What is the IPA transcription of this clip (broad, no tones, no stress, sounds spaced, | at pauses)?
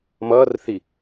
m ʌː r θ i